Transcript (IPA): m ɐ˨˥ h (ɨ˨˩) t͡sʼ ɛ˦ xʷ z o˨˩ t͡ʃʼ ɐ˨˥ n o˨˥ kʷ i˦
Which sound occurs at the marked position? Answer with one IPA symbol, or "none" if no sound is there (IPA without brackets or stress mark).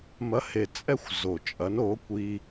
e˨˩